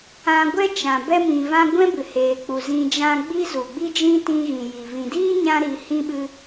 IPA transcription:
ã˧ ɡʷ ɛ˦ t͡ʃ ã˨ b ɛ˧ m ĩ˨ v ã˧ ɡʷ ɛ̃˦ b ɨ˨ h eː˨ k͡p u˨ z ĩ˧ d͡ʒ ã˦ ɡ͡b i˧ z u˨ ɡ͡b i˦ d͡ʒ ĩ˦ t ĩ˧ ɣ ĩ˨ j i˨ v ĩ˨ d iː˦ ɲ ã˧ ɾ i˨˦ h ĩ˦ ɓ ɨ˦

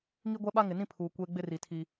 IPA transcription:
ŋ i˦ ɡʷ ɛ˦ ɓ a˦ ŋ ɪ˨ n ĩ˦ pʰ uː˨ kʷ eː˦ ɡ͡b ɪ˦ r i˨ tʰ i˦

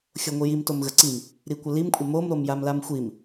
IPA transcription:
xʲ o ŋʷ i j i m t o m ɣ ə ǀ i m | ɾ i kʷ ə l i m kʷʼ ə m o m ɾ o m j a m l a m xʷ i m

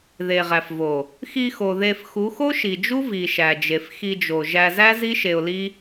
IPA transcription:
ð e˨ ʁ æ˨ f v o˨ | x i˧ x o˨ ð e˨ f x u˨˦ x o˦ ʃ i˨ d͡ʒ u˦ v i˨ ʃ æ˨ d͡ʒ e˨ f x i˧ d͡ʒ o˨ ʒ æ˧ z æ˦ z i˦ ʃ e˧ ʊ̯ l i˦

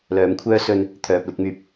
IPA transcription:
l œː˨˥ m kʷʰ œː˥ s ɵ˧ n | t̪ʰ œː˨ p̚ l ɪ˨˥ k̚ m yː˨ p̚

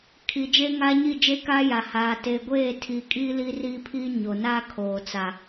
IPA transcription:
kʰ i˨ d͡ʒ e˦ ŋ aː˦ ɲ i˦˨ d͡ʒ eː˦ k aː˦ j a˨ h aː˨ t e˨ ɡʷ eː˦˨ tʰ i˨ kʼ iː˦ l i˦ r iː˦ pʰ iː˦ ɲ o˨ n aː˦ kʰ oː˨ t͡s a˨

